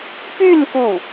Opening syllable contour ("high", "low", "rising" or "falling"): falling